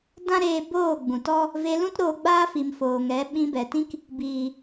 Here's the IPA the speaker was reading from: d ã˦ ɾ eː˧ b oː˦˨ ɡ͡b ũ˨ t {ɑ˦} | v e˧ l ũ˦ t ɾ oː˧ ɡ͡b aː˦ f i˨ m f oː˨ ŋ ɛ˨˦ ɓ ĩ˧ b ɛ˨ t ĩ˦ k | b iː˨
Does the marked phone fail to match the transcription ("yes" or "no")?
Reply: yes